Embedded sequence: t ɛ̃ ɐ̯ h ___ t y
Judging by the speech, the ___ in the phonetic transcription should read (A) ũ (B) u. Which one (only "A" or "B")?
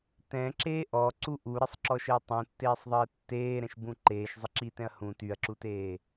A